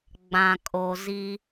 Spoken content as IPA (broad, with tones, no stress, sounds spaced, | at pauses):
ɡ͡b ã˨ kʼ o˨ z i˦